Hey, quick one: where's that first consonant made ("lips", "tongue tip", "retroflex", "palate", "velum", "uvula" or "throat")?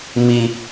lips